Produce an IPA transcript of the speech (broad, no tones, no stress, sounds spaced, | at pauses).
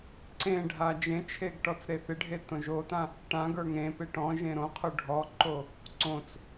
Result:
ǀ ẽ ɖʱ a d͡ʒ ẽ t͡ʃʰ e ɡ ʈ ɔ t͡s ɾ e θ ɪ ɖʱ e t õ ʒ o t ã | ʈ ã ɡ ə˞ ŋ ẽ p e ʈ ɔ̃ ʒ ẽ ɾ õ qʰ o ɖʱ ɔ ǃ o | ǀ õ t͡s